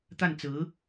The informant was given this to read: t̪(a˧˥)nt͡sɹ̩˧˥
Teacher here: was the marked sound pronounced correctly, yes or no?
no